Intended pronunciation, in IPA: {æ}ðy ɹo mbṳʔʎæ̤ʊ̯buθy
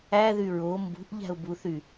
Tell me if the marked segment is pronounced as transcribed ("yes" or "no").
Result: yes